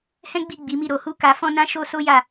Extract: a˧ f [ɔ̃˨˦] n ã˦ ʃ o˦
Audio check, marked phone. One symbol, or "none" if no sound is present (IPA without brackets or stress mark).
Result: ɔ̃˦